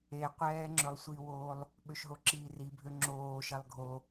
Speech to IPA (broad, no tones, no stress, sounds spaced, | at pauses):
e qʷ ɛː ŋ͡ǁ ɵ lˠ sʷ i w oː lˠ | ɓ ø ʃ ɦ o ǁ iː r i bʱ ø ŋ͡ǁ oː ʃ ɛ lˠ ɡʱ o